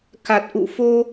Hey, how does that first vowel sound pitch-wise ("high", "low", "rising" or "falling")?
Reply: low